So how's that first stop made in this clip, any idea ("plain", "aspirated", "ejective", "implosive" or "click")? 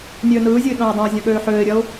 implosive